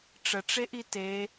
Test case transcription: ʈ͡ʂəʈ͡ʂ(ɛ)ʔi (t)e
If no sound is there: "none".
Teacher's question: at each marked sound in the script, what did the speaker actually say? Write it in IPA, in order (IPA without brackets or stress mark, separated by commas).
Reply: e, t